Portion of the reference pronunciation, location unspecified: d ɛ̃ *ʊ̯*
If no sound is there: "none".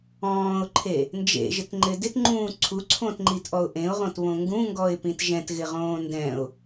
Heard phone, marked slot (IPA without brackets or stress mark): ʊ̯